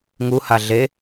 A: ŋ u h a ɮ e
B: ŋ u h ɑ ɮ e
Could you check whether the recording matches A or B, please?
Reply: A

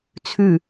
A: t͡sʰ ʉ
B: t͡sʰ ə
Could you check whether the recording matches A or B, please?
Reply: A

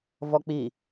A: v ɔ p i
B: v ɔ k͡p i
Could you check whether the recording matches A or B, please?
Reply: B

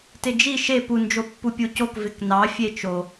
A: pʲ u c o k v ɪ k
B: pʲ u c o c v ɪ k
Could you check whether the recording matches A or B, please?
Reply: A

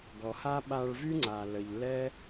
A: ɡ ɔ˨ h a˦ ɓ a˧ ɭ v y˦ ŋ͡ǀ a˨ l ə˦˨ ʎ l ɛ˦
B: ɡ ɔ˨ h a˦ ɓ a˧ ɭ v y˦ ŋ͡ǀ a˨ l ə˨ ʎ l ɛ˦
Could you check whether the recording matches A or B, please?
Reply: B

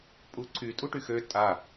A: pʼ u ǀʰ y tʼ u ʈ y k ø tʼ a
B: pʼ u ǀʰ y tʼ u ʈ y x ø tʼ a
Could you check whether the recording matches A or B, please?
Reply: B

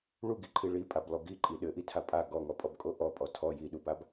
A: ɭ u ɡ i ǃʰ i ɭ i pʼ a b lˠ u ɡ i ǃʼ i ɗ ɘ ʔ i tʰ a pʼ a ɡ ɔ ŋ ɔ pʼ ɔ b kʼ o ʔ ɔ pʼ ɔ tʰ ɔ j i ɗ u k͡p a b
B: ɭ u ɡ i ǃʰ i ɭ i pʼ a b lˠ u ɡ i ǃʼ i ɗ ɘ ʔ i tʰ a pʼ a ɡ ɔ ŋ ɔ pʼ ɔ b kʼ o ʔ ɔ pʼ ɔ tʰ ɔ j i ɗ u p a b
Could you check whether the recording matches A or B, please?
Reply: B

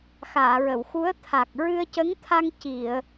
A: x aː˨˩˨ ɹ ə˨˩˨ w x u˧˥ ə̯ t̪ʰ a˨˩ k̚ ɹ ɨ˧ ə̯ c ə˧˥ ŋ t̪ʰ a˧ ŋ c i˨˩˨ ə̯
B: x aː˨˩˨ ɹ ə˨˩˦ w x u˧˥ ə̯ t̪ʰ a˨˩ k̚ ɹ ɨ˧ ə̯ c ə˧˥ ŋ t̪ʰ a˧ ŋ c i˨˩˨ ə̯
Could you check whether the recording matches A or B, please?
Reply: A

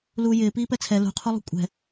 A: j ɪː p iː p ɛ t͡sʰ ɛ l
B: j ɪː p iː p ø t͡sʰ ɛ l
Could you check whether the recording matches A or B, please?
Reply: A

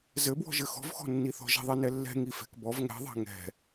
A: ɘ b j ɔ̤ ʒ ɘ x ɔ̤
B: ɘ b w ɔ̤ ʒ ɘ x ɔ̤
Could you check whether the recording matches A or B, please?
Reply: B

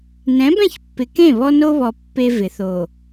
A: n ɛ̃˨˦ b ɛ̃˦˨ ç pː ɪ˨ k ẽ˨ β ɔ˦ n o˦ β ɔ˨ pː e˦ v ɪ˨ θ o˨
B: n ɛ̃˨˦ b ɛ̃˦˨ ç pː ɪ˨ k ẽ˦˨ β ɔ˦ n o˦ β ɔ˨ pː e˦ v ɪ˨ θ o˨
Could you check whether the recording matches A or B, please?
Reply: B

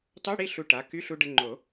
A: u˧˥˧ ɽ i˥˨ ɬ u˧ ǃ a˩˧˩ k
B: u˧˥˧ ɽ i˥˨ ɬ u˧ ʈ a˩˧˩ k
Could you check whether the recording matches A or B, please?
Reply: B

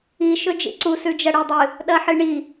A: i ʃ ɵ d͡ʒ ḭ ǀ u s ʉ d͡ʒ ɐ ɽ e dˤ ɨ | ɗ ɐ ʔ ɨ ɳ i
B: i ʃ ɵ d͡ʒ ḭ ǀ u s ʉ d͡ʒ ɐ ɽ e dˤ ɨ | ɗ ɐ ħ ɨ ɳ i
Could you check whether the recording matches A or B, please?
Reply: B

